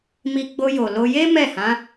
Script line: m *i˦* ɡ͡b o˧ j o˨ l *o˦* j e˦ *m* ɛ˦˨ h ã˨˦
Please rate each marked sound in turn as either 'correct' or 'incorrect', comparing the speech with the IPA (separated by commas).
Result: incorrect, incorrect, correct